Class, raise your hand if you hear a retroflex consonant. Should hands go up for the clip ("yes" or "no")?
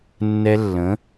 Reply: no